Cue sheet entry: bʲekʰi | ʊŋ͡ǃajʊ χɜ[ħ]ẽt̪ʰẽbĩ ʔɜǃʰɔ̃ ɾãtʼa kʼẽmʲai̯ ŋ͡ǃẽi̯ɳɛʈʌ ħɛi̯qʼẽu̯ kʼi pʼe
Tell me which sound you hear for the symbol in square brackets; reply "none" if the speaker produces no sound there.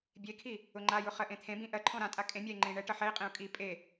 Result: ʔ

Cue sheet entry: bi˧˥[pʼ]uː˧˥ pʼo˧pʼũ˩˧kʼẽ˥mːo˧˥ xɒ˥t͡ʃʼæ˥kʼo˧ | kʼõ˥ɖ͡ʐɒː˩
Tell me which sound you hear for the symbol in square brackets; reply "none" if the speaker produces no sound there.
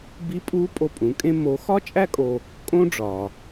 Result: pʼ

